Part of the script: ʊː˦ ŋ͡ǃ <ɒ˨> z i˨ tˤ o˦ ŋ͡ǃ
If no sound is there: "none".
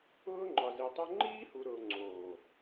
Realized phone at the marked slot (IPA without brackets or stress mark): ɒ˨